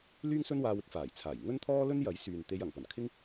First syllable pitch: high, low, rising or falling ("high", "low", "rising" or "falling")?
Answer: high